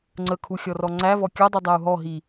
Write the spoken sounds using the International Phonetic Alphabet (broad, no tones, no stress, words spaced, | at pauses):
ŋ͡ǀəkʰuxʲɔrɔ ŋ͡ǀævɔ kʲɔdˤydˤæu̯ ɦɔɦi